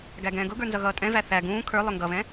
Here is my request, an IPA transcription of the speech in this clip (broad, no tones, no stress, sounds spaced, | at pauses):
ɡ æ ɡ ɛ̃ː ɡ ʊ ɡ ə˞ n z ʌ ɣ ʌː tʼ ɛ̃ v æ θ æ ɡ ũː kʰ ə˞ lˠ ʊ ŋ ɡ ʌ β ɛ̃